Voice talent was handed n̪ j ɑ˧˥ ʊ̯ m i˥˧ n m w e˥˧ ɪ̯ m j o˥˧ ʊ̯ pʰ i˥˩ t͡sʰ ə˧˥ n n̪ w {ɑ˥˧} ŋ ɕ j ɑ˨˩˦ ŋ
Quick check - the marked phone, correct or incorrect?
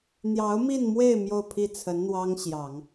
incorrect